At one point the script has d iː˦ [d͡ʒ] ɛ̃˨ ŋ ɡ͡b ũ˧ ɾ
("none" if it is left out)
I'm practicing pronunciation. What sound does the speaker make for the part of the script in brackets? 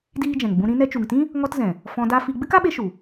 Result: d͡ʒ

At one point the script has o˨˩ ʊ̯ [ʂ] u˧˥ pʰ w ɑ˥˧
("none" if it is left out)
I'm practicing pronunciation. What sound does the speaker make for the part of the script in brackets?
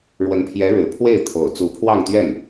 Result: t͡s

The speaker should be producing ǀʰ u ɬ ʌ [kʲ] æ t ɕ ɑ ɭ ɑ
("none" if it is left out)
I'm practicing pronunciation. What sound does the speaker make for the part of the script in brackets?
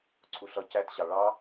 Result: c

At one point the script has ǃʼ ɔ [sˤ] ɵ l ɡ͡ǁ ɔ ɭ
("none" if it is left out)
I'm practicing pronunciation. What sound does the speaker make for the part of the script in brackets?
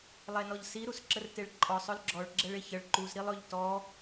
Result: sˤ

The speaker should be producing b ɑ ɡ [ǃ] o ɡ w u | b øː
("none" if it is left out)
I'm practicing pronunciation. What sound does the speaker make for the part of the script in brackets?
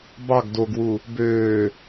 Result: d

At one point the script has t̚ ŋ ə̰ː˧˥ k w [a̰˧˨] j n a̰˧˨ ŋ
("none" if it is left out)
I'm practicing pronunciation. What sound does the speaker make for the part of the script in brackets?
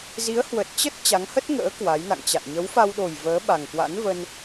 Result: a˨˦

